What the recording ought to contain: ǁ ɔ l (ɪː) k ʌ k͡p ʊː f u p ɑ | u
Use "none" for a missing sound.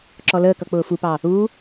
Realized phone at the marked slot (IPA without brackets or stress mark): əː